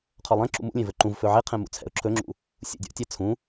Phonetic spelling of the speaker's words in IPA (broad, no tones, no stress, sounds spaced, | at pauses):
qʰ ɔ lˠ ɛ̃ ǁ ṵ m ṵ lʲ ẽ v ɵ ǃ ũ v f ɵ ʕ e qʰ ɛ̃ m ṵ t͡sʰ ɛ̰ ʊ̯ ǁʰ ɵ ŋ͡ǁ ṵ | sʲ ṵ dʲ ɔ̰ tʲ ɛ t͡sʰ ũ